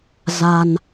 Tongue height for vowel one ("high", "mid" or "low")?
low